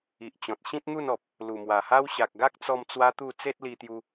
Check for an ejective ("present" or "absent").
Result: absent